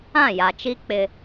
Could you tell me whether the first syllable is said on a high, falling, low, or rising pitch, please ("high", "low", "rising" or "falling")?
falling